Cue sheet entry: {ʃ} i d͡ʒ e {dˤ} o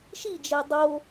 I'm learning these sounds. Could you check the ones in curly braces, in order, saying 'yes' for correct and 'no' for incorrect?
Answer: yes, yes

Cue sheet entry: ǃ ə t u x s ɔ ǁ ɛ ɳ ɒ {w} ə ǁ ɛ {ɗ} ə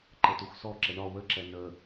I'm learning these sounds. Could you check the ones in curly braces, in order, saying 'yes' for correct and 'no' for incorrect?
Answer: yes, no

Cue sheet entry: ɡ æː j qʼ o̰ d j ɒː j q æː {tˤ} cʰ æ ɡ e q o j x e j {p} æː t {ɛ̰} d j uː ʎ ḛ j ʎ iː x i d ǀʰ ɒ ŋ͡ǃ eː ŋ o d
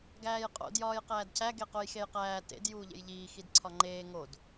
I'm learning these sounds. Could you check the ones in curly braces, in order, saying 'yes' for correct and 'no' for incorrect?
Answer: no, no, no

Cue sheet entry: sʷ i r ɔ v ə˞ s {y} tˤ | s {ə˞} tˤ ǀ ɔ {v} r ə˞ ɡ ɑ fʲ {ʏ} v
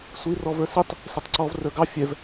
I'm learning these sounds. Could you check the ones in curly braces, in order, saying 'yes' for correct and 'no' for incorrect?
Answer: no, no, yes, no

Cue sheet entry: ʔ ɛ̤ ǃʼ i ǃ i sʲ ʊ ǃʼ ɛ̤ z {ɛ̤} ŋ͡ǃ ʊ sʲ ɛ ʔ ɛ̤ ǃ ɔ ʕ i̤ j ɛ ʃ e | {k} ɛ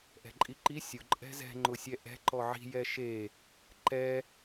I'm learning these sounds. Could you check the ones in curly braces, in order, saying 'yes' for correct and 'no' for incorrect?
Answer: yes, no

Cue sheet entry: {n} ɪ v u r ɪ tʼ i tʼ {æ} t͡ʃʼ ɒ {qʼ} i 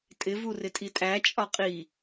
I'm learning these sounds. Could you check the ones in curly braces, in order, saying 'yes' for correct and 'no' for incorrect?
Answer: no, yes, yes

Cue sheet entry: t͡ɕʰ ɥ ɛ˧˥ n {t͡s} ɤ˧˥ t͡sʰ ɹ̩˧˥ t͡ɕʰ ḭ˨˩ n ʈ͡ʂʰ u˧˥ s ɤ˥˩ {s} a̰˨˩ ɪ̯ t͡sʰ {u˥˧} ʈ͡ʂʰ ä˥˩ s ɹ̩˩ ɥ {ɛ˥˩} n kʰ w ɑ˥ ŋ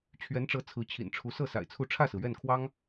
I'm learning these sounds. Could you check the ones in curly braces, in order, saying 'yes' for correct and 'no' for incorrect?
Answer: no, yes, yes, yes

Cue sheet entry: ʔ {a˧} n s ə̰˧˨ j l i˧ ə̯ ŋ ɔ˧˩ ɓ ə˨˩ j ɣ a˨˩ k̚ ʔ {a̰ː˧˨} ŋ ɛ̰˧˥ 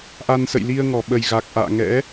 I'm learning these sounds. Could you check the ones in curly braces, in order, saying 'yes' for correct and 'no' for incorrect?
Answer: yes, yes

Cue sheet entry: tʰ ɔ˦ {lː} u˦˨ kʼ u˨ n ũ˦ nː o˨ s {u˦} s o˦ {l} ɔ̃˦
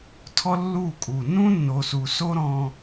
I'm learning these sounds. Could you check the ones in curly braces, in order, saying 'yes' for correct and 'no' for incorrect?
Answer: yes, no, no

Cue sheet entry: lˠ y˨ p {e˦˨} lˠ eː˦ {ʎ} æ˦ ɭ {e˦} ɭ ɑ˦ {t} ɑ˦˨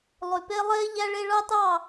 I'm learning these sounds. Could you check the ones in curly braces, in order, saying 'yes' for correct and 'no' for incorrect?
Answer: no, yes, yes, yes

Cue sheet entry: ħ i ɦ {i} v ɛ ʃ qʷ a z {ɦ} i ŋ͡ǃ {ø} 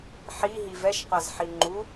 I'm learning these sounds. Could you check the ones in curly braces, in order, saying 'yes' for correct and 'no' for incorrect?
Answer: yes, no, no

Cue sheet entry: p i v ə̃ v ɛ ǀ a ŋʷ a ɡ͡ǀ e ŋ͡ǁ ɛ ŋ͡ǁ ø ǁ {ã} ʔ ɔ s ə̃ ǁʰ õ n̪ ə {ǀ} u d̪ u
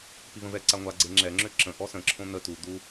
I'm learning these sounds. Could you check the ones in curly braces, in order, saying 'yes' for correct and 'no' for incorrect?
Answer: no, no

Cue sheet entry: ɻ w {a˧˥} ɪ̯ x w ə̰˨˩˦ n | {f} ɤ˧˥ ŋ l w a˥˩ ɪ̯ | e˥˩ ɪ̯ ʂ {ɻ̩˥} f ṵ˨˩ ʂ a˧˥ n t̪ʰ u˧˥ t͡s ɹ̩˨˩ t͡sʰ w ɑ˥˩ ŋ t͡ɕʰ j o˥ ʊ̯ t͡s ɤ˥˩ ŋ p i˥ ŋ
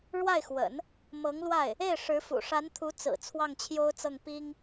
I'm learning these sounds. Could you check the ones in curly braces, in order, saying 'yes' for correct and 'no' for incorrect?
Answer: no, no, no

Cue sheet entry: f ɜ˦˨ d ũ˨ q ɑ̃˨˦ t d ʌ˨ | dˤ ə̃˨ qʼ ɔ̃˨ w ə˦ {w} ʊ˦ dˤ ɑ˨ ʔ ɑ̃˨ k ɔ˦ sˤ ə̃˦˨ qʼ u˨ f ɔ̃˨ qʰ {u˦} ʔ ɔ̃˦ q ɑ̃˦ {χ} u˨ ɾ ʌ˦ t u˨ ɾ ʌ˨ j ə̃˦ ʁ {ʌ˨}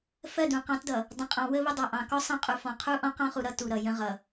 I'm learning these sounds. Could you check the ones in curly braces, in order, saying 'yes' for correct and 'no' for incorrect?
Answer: no, yes, yes, yes

